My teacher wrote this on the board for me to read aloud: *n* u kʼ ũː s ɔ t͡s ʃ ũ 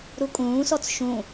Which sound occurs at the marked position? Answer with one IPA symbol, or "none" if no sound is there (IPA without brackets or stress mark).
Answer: ɾ